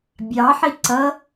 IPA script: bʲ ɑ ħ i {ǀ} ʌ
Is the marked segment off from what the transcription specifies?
no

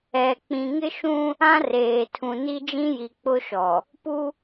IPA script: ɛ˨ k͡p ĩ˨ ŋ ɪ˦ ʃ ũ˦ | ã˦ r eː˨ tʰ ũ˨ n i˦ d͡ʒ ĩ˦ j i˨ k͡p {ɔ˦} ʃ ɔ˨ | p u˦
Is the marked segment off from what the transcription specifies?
yes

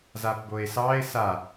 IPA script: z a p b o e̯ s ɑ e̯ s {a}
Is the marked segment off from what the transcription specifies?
no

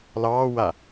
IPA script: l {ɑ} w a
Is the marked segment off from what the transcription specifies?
yes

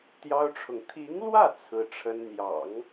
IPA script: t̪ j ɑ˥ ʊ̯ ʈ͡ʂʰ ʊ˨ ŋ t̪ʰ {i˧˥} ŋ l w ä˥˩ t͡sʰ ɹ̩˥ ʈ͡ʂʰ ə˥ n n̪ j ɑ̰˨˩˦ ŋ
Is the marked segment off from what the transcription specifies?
no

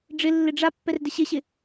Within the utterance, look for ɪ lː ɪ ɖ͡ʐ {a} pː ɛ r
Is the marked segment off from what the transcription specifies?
no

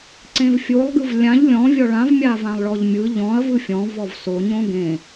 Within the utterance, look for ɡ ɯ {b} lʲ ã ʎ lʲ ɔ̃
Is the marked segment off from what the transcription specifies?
yes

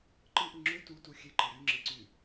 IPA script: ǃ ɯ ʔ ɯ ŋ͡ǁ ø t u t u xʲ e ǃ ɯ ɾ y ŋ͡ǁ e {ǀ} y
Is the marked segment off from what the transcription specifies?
no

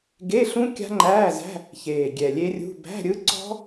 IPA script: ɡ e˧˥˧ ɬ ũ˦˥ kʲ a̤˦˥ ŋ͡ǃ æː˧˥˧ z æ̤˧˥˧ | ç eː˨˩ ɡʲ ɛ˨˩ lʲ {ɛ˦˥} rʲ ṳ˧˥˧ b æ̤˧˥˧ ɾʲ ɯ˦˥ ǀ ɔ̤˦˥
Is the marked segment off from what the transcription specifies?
yes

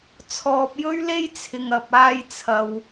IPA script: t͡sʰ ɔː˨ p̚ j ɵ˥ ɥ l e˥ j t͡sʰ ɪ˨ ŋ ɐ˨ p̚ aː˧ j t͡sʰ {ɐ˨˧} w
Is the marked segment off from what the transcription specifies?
yes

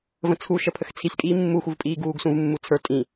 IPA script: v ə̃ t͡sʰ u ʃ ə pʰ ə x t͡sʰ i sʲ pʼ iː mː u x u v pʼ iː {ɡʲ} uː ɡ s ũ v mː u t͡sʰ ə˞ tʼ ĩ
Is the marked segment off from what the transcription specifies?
yes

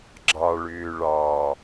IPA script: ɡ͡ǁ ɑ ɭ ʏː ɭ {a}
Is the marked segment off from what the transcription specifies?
yes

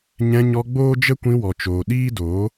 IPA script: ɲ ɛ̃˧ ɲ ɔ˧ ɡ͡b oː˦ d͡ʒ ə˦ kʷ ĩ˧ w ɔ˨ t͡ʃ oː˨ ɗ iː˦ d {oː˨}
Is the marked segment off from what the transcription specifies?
yes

